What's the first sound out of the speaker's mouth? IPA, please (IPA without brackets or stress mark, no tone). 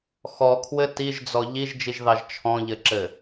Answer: x